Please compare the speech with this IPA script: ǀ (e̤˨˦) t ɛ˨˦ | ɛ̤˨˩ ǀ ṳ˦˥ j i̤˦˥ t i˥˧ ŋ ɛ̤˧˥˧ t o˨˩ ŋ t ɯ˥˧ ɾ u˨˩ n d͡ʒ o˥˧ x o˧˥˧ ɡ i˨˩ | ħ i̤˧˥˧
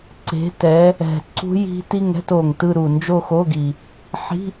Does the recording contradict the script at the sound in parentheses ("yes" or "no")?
no